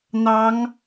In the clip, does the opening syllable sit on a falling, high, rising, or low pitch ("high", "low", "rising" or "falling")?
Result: rising